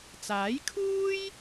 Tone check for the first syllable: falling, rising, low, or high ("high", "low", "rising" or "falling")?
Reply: rising